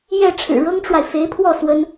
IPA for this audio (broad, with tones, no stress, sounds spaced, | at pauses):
j ɛ˥˩ ʈ͡ʂʰ ɻ̩˨˩ ɻ ɤ˥ ŋ ʈ͡ʂ w a˨ ɪ̯ f e˧˥ ɪ̯ pʰ w ɔ˥˩ s w ə˥ n